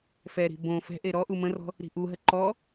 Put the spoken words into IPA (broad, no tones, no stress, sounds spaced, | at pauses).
f ɛ ɾ i̤ b õ f ɛ̤ ʔ e ɾ ɔ ʔ u m ə̃ r ɔ̤ | ɾ i̤ ʔ u ɦ ə ǃ ɔ